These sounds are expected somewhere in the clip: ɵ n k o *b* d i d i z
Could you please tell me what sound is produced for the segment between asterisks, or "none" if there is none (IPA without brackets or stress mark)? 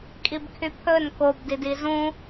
b